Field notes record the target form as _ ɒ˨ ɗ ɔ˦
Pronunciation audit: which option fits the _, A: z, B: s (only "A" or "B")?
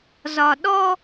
A